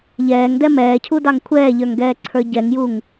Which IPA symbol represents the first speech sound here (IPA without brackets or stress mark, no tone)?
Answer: ʎ